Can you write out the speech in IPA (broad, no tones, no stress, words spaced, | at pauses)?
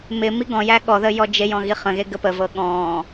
mɪ miɡɔ̃jæ ɠɔðə jɔd͡ʒejɔ̃ ɣiχə̃ɣe ɡəpəvɤ ɠɔ̃